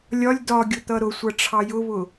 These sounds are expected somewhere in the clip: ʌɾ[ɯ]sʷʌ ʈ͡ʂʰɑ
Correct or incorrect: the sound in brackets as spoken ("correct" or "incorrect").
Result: incorrect